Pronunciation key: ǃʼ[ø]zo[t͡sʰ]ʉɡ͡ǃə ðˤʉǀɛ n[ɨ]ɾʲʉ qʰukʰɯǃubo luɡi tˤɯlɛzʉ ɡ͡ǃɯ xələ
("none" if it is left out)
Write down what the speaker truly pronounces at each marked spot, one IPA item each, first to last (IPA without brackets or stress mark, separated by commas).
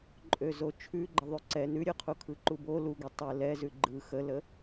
ø, t͡ʃʰ, ʉ